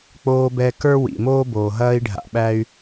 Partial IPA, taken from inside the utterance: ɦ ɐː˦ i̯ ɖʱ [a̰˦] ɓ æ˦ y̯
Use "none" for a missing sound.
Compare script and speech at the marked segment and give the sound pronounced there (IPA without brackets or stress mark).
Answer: a̰˨